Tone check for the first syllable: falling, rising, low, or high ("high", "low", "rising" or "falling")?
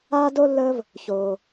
high